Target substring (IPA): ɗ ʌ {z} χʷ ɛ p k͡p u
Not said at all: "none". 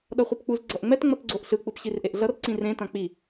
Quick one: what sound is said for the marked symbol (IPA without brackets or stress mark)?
none